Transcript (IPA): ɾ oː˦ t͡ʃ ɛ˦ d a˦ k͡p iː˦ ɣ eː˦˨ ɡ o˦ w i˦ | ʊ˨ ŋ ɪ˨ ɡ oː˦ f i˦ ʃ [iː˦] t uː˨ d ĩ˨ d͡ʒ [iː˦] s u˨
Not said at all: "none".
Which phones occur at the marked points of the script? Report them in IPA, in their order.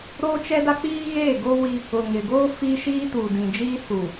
iː˦, iː˦

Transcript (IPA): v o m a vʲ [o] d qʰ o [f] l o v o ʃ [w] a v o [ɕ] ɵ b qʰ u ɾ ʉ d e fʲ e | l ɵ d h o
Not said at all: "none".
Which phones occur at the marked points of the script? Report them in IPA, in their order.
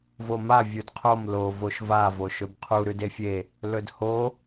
u, m, v, ʃ

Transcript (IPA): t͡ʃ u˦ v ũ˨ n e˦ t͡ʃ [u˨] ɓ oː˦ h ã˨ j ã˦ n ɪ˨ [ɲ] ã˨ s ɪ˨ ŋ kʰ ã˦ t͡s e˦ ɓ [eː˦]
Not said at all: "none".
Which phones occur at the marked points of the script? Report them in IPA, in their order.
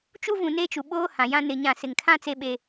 u˨, ɲ, e˦

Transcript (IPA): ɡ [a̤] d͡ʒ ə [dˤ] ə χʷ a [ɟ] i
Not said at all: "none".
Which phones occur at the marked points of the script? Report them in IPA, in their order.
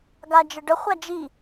a, ɖ, d͡ʒ

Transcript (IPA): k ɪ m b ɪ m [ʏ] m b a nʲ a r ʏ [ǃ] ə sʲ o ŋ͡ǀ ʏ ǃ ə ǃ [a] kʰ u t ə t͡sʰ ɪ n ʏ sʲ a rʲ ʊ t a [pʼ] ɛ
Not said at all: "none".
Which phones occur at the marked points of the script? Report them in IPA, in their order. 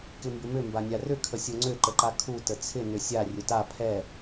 ʏ, kʰ, a, pʰ

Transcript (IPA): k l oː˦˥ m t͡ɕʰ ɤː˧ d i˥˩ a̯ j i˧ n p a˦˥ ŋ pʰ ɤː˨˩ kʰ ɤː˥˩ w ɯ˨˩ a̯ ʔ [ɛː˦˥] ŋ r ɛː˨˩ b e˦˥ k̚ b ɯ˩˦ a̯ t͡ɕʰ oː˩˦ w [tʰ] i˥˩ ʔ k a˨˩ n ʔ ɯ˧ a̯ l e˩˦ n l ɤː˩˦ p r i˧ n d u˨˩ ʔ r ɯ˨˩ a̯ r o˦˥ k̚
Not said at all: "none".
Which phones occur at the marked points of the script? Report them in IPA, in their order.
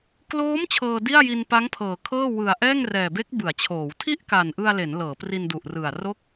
ɛː˥˩, tʰ

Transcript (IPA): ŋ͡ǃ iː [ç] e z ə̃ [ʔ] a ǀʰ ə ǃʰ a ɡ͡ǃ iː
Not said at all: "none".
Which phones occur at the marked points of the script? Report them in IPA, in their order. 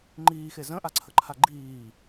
x, ʔ

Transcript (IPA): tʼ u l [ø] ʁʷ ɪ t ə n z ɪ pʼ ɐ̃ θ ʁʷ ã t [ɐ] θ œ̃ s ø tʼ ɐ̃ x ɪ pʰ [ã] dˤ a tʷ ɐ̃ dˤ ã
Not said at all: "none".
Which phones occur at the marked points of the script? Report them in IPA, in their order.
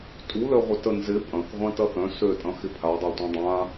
œ, ɐ, a

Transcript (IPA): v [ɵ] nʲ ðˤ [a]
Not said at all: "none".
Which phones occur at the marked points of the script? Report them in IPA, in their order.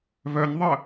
œ, ə

